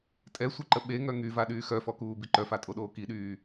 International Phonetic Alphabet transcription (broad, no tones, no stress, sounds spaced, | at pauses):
tʼ ɛ sʷ i ǃ ə ɓ e ŋ œ ŋ y v a ɗ yː x œ f ɔ k uː b i ǃ œ f a tʼ o ɗ oː k i ɗ yː